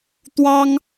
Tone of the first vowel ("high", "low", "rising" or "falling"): high